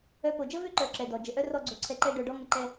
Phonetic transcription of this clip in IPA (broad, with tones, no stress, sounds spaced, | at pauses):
œ˧ p o˨ d͡ʒ ə˦ v ø˦ ǃ œ˨ ǁ ɛ˨ d ɔ˨ d͡ʒ ə˨ ʔ œ˦ r ɔ˧ ɡ͡ǀ o˨ ǀʰ ɛ˧ ǃ ɛ˦ ɖ œ˧ ɖ ɔ˦ ŋ ə˧ ǃ ɛ˧